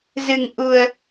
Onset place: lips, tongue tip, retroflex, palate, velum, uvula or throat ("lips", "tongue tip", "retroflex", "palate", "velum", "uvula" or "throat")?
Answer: tongue tip